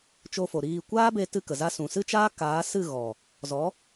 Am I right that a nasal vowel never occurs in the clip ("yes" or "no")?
no